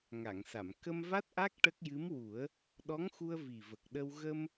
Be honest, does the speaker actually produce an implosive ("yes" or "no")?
yes